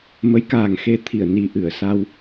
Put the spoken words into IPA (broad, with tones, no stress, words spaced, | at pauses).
mə˨˦jkaː˨˩ŋ xe˧ t̪ʰi˧˩ə̯ni˨˩ʔɨ˧˩ə̯sa˧w